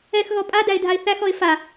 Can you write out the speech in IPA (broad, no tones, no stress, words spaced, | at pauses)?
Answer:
ɛxɣɔ pʼadæɪ̯dʱaɪ̯ θæxɔɪ̯ fa